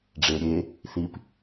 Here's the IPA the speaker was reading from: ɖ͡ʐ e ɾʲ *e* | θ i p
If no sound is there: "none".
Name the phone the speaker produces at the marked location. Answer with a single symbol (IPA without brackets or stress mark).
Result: e